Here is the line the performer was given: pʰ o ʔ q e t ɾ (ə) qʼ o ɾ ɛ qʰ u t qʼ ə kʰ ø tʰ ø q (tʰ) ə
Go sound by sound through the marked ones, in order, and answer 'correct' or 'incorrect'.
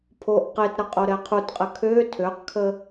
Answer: correct, incorrect: kʰ

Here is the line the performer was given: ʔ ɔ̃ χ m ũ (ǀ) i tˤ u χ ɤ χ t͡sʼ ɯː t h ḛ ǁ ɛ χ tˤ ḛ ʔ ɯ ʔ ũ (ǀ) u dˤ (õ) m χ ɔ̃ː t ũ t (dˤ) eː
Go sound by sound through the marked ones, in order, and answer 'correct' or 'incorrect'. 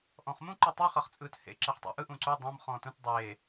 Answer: incorrect: ǃ, correct, correct, correct

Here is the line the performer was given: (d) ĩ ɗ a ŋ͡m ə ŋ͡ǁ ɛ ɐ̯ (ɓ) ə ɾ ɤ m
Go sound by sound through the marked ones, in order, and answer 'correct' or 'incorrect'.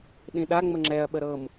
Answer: incorrect: ɗ, correct

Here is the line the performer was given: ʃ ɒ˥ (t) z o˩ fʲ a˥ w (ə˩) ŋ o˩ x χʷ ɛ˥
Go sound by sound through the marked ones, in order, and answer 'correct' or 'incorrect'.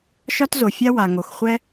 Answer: correct, incorrect: a˩

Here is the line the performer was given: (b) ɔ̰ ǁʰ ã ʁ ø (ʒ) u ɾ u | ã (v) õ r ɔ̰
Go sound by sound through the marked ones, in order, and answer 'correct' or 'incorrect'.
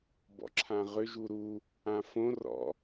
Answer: correct, correct, incorrect: f

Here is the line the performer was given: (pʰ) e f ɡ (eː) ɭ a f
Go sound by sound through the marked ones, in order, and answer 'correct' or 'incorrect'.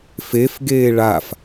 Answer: incorrect: f, correct

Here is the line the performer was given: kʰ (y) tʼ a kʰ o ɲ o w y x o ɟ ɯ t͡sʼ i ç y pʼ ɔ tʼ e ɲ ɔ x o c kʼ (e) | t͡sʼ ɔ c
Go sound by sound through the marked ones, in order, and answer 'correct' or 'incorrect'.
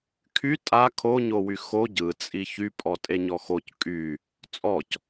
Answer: correct, incorrect: y

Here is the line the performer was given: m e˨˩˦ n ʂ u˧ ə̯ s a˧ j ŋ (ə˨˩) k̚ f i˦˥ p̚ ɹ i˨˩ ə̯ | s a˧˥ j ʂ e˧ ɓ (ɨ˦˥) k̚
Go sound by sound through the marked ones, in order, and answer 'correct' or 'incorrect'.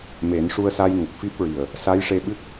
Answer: correct, correct

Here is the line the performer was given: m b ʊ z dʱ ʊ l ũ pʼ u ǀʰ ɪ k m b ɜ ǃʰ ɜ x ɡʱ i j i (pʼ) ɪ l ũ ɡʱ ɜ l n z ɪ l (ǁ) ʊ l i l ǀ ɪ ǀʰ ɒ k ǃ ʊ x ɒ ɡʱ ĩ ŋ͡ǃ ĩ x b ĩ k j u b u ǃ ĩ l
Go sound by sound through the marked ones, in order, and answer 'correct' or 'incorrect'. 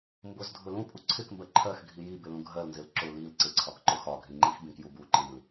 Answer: incorrect: b, correct

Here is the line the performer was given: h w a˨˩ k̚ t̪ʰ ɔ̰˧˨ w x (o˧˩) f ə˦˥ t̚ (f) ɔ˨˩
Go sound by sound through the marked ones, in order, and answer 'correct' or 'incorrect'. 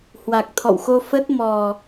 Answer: incorrect: o˧, incorrect: m

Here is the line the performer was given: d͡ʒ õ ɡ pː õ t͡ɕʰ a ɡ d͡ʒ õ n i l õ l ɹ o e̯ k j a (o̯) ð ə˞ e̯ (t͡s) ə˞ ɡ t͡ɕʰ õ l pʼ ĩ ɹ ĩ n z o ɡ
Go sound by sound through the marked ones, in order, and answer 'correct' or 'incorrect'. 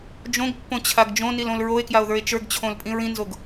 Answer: correct, incorrect: t͡ʃ

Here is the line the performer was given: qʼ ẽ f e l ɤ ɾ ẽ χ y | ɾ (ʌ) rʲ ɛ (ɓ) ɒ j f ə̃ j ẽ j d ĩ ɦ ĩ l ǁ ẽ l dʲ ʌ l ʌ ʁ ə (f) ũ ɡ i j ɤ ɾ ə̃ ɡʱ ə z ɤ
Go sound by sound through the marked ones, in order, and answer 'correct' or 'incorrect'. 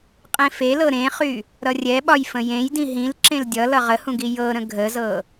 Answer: correct, correct, incorrect: h

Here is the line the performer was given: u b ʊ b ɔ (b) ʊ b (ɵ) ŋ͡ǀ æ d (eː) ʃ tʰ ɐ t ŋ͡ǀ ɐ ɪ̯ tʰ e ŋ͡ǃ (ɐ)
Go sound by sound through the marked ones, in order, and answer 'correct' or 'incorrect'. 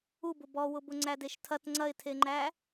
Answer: incorrect: w, incorrect: ʊ, incorrect: e, incorrect: æ

